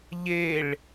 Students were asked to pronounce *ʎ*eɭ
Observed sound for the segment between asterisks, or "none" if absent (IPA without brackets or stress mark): ʎ